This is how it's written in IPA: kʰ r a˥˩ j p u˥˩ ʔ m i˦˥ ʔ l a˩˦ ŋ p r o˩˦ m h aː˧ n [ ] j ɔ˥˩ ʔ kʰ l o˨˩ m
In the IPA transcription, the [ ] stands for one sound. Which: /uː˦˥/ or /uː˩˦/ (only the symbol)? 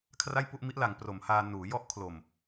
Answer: uː˩˦